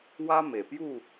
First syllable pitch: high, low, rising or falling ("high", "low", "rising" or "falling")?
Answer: high